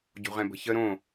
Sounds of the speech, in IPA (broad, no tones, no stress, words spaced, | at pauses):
ɟo̤ʁɛ̃bə̤çə ɾõ